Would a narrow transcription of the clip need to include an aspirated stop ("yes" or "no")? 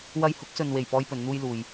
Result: no